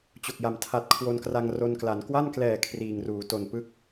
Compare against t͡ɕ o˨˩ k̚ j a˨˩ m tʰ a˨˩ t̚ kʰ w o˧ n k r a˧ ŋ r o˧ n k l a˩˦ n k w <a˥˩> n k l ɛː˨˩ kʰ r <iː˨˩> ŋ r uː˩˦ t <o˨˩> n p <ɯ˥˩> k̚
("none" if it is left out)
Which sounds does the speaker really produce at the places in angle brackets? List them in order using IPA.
a˥˩, iː˨˩, o˨˩, ɯ˥˩

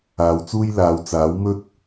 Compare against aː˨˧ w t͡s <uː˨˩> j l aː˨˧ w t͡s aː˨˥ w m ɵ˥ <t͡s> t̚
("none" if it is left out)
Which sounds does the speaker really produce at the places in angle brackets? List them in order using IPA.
uː˥, none

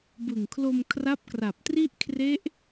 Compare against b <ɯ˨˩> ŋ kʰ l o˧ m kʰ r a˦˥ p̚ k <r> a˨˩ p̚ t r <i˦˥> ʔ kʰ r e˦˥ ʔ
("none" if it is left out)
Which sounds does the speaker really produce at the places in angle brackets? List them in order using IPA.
ɯ˨˩, r, i˥˩

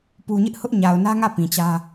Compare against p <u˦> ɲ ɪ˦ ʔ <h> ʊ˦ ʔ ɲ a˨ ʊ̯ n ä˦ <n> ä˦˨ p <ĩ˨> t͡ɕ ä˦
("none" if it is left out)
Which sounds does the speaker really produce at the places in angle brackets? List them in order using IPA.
u˨, h, ŋ, ĩ˨

